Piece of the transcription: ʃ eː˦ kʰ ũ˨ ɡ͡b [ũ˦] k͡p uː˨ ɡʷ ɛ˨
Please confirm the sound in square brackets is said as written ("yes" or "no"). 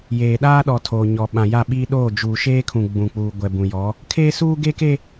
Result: no